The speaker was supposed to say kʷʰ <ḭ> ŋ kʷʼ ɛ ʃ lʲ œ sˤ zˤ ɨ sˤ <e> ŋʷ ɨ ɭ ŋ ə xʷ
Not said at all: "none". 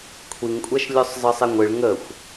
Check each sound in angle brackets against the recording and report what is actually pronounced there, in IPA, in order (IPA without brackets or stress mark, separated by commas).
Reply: i, e